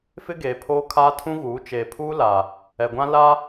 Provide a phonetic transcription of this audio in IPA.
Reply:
f ɪ˦ ɡ eː˨ pʰ oː˦ kʰ aː˦ tʰ ũ˦ ɣ uː˨˦ t͡ʃ eː˨ pʰ uː˦ l a˨ | ɛ˨ ɡʷ ã˦ l a˦

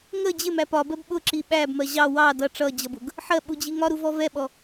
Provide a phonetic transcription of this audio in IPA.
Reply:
ŋ ə d͡ʑ ɪ m æ p ɒ b ɜ b ɓ ʊ ǁ i ɓ æ b m ɜ ʑ ɑ w ɑ d ʌ ʈ͡ʂ ʌ d͡ʑ ʌ b ʊ ɡ | ħ ɜ ɓ u d͡ʑ i ŋ ɒ ɾ u v ɔ v ɛ ɓ ɔ

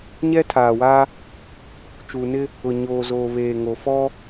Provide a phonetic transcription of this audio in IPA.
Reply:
ɲ ɛ˦ tʰ aː˨ w a˦ | t͡ʃ uː˨ n ɪ˦ | ʊ˨ ɲ oː˨ z oː˨ β eː˨ ŋ o˨ f ɔ˦

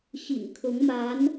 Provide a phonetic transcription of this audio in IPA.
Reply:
ɕ ḭ˨˩ ŋ kʰ ʊ˧˥ ŋ m a˧˥ n

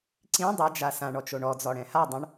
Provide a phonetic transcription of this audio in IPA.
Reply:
ǀ ĩ dˤ ɛ d͡ʒ a s ã ɳ ɔ t͡ʃ o ɳ ɔ d͡z ɔ ɽ ɛ̃ h a dˤ õ ɳ

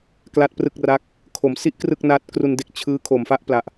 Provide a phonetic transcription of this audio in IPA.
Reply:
k l a˥˩ t̚ p r ɯ˥˩ k̚ r a˦˥ k̚ | kʰ o˩˦ m s i˦˥ ʔ k r ɯ˥˩ k̚ n a˦˥ t̚ k r u˧ n d e˦˥ k̚ t͡ɕʰ ɯː˦˥ kʰ o˨˩ m f a˥˩ ʔ p l a˨˩ ʔ

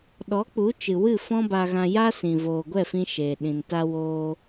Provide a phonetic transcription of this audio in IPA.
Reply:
ɗ ɔ˨˦ k͡p u˨˦ t͡ʃ ɨ˨ w ɨ˦˨ f ɔ̃˦ b a˧ ɣ ã˧ j a˦ s ĩ˨ v oː˨ ɡʷ ɛ˦˨ f ĩ˧ ʃ eː˨ ɗ ĩ˨ n t a˦ w oː˦

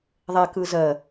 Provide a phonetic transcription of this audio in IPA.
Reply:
ðˤ ɛ k ɯ z ɜ

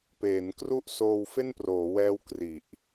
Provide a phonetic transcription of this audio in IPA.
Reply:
p eː˩˦ n k r u˥˩ ʔ s oː˧ w f e˥˩ n p r oː˩˦ w ɛː˦˥ w k r i˨˩ ʔ

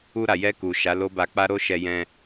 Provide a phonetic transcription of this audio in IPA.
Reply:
u˧ ɾ a˨ j ɛ˧ k u˨ ʃ a˨˦ l o˦ b a˧ k͡p a˦ ɾ o˦ ʃ ɛ˧ j ɛ̃˧

